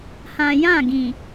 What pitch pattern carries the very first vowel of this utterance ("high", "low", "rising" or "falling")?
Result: low